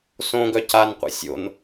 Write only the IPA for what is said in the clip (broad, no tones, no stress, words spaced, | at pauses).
sõɡœ canqʷḭ sʲo̰n